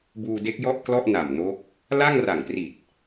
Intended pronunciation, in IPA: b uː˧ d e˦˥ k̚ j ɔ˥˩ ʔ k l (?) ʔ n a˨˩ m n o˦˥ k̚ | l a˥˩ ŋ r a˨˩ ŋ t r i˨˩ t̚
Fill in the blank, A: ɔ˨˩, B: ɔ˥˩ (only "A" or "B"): B